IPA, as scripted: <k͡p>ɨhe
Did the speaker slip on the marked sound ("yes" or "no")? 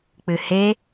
no